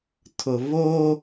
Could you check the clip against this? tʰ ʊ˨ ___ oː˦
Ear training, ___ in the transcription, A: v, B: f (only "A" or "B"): A